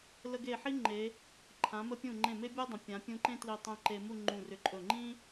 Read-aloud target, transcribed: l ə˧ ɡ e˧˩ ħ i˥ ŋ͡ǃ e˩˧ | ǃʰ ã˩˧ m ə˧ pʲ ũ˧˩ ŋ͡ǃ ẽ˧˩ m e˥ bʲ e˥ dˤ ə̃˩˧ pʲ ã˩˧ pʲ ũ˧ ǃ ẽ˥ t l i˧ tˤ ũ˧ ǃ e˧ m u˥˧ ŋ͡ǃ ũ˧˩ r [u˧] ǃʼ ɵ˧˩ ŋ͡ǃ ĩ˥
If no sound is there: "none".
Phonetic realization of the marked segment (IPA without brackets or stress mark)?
ʏ˧